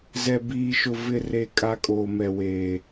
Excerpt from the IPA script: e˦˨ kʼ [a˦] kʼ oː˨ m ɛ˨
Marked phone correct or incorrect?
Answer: correct